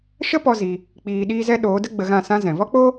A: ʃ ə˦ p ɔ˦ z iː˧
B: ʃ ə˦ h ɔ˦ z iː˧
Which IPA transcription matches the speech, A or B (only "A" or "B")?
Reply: A